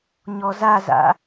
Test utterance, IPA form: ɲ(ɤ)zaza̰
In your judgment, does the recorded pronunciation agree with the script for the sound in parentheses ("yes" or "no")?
no